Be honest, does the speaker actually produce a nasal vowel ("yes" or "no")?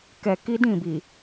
yes